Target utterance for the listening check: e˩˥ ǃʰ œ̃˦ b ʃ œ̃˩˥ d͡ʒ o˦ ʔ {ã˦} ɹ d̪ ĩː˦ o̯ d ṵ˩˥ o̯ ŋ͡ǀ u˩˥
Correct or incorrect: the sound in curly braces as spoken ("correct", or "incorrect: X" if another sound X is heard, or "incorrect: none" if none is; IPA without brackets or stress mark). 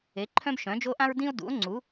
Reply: correct